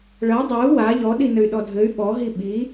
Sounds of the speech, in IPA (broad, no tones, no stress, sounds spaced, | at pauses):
ɭ ɐ dˤ ɐ u̯ w a ʎ ɔ ɗ i n ɘ y̯ ɗ ɔ dʱ ɘ y̯ ɓ ɔ ɦ i ɓ i